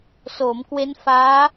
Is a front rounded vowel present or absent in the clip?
absent